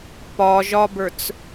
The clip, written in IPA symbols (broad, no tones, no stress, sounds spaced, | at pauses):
p ɒ ʒ ɒ b ə˞ t͡s